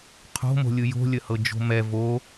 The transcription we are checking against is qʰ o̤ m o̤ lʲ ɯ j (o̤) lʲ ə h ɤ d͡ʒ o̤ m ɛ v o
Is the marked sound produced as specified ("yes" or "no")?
yes